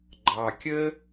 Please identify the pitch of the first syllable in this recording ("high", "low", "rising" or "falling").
low